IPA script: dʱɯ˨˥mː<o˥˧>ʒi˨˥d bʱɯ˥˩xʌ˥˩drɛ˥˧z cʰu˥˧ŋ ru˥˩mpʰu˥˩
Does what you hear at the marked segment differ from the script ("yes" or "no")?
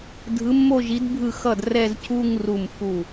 no